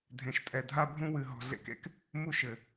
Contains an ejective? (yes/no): yes